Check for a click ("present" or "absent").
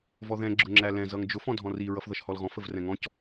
present